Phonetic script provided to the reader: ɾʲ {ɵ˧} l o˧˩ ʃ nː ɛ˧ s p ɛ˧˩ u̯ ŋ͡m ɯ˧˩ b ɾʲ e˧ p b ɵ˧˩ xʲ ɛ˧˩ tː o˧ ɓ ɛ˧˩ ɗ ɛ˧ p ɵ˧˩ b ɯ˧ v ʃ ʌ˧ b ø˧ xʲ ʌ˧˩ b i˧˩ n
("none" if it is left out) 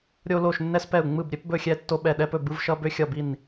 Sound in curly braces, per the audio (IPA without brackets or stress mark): o˧